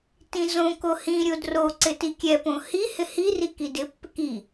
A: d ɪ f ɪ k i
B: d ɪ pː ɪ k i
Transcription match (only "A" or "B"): B